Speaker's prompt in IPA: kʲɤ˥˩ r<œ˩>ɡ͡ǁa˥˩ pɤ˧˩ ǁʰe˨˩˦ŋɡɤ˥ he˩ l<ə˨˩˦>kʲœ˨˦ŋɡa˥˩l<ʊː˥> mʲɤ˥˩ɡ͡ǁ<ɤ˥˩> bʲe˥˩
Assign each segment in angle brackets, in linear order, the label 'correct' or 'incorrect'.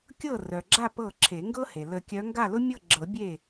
correct, correct, incorrect, incorrect

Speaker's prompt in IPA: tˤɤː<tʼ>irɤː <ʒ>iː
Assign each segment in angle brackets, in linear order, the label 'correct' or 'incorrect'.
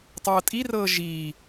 correct, correct

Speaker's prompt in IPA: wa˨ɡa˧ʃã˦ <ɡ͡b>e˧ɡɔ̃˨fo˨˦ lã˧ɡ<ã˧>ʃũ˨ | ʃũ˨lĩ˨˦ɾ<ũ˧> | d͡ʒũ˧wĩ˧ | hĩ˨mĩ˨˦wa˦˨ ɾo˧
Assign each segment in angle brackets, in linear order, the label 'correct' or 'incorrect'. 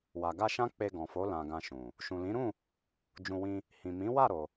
incorrect, correct, incorrect

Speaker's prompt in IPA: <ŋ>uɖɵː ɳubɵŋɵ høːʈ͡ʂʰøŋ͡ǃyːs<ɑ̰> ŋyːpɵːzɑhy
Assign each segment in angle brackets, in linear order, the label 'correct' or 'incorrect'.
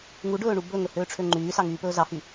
correct, incorrect

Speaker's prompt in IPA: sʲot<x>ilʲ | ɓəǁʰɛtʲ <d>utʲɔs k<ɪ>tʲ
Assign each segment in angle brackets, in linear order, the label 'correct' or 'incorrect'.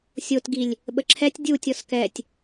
incorrect, incorrect, incorrect

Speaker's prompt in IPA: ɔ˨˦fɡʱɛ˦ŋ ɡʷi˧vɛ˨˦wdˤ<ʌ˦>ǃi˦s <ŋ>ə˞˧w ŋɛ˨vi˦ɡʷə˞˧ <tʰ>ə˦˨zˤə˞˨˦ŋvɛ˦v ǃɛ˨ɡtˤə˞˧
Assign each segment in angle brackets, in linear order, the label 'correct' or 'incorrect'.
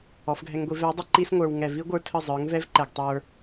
correct, incorrect, correct

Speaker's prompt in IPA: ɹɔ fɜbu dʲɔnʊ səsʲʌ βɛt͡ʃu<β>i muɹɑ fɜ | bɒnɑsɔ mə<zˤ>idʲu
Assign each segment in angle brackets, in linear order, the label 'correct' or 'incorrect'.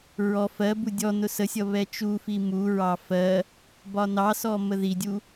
incorrect, incorrect

